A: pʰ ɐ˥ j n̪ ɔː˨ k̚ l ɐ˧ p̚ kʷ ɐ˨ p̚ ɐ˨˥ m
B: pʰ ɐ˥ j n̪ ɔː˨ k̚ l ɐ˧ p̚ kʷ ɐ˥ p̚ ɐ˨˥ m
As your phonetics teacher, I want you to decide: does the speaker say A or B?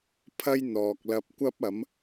B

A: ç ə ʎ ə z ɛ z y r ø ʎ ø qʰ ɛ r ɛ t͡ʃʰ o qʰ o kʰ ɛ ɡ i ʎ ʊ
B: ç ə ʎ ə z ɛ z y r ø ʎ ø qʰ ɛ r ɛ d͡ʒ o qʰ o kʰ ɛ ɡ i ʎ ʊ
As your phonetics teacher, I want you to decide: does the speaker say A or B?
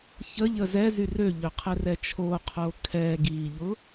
A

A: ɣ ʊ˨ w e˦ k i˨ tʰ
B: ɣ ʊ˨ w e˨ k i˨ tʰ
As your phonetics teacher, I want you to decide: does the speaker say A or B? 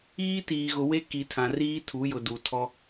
A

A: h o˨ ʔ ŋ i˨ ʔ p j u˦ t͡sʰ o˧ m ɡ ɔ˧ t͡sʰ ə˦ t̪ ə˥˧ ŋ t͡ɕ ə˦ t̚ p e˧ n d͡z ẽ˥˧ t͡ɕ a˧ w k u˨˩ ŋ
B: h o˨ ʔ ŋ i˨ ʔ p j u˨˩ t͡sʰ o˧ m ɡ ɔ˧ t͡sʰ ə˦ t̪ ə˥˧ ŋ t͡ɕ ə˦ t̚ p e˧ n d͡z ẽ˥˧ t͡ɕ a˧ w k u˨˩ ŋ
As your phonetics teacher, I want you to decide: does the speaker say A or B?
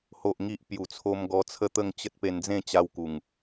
B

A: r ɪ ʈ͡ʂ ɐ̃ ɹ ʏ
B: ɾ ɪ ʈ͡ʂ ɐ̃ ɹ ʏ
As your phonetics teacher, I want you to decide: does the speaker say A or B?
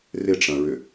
A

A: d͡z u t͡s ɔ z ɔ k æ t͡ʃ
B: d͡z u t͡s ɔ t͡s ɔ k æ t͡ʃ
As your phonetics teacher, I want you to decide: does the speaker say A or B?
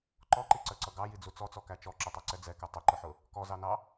B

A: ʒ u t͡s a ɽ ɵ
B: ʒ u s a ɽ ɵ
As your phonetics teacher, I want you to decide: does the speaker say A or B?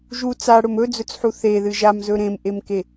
A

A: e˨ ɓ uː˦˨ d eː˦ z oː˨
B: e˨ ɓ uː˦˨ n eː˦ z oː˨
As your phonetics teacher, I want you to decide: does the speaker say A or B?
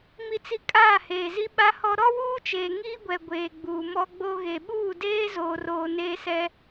A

